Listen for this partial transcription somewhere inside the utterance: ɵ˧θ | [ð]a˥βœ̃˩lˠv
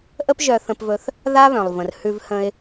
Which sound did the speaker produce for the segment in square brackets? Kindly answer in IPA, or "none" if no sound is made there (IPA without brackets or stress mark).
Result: ð